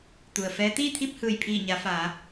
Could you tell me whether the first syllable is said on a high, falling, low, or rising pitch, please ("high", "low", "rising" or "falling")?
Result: low